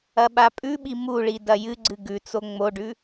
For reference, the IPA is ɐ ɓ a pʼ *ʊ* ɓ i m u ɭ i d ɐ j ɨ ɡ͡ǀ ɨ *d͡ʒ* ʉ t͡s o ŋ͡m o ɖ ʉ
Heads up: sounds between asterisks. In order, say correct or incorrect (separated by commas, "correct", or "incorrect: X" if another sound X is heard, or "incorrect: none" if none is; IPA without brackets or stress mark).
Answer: incorrect: ʉ, incorrect: ɡ